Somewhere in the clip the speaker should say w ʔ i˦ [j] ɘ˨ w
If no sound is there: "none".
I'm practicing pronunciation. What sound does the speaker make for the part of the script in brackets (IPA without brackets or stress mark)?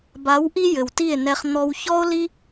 j